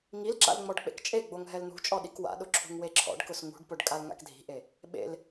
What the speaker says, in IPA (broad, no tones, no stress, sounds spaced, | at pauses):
ŋ i l ǁ a̰ l ŋ͡m ɔ ɖ k͡p ḛ k t͡ʃʼ e ɡ͡b o ŋ ɦ ɛ l n̪ ṳ t͡ʃʼ ɔ ɗ i k w a̰ ɗ ʊ ǁʰ ṳ ŋ w e ǁʰ ɔ̰ ɖ k ʊ s ŋ ṳ ɖ p ʊ ɖ kʼ a l ŋ a̰ k dʱ i̤ ʔ e | ɓ ḛ l